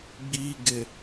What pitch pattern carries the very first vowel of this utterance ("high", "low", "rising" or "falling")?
low